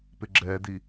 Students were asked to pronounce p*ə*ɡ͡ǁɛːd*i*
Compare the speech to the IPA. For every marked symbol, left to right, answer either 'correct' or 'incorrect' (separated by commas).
incorrect, correct